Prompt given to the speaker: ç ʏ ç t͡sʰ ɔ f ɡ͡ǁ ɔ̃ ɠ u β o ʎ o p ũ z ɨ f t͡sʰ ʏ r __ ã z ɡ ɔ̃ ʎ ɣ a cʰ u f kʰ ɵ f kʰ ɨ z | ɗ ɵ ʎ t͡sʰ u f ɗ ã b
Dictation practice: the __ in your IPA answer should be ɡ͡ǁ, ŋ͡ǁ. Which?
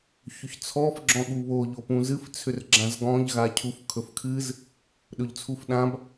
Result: ɡ͡ǁ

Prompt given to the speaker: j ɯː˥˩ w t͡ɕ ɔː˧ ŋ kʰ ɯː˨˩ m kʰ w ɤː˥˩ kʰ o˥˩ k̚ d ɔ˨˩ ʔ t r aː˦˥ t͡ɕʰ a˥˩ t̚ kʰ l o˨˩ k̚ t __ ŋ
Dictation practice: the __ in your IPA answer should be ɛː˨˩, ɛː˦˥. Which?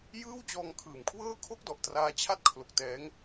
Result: ɛː˦˥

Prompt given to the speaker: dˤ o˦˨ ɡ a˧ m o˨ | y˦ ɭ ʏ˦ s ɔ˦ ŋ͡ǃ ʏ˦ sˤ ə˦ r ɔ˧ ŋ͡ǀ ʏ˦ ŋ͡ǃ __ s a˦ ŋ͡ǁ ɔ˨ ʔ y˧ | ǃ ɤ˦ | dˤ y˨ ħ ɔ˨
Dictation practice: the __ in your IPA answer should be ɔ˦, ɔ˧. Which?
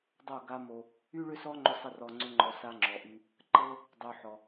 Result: ɔ˧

